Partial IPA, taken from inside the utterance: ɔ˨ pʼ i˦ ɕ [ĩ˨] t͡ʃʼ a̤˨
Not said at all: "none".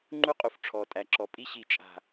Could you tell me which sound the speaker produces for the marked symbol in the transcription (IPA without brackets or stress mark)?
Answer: i˨